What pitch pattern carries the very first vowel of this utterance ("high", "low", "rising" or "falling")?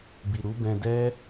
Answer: low